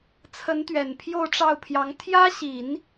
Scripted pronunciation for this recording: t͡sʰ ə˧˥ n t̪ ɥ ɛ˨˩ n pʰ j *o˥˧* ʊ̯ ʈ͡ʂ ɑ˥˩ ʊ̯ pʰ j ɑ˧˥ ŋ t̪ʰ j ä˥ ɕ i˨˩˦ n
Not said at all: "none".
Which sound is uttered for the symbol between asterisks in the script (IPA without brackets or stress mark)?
o˥˧